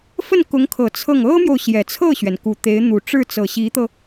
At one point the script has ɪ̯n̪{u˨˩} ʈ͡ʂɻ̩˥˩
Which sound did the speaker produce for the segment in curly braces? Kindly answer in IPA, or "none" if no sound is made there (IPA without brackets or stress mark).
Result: u˨˩